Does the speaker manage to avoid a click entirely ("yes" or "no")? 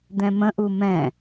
yes